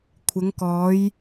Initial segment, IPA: kʷʰ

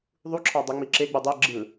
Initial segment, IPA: ðˤ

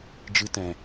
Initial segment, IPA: d͡ʒ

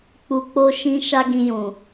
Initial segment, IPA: k͡p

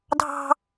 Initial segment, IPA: dʱ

